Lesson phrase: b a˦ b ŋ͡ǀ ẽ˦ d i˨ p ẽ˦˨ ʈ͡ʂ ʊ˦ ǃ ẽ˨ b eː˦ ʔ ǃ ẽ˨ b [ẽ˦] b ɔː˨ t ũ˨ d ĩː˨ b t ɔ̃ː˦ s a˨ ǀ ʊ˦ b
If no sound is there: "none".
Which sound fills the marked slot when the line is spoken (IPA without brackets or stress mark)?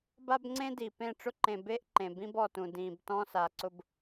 ĩ˦